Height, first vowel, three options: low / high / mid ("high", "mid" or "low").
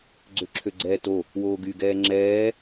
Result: mid